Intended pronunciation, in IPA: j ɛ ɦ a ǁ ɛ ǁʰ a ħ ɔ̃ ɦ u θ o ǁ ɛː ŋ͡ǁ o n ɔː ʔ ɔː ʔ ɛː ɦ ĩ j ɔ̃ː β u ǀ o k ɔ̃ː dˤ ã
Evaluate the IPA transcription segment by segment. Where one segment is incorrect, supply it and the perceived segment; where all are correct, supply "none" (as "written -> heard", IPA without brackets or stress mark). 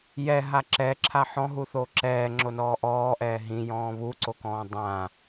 none